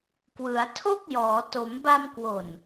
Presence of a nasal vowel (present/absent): absent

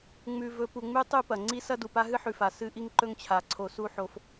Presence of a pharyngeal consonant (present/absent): present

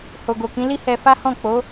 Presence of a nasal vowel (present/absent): present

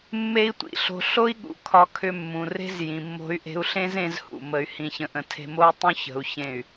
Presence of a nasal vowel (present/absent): present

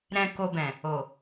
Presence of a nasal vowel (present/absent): present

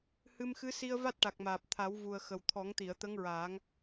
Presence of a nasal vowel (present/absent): absent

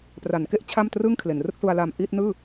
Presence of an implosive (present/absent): absent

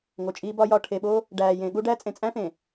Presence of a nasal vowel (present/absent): present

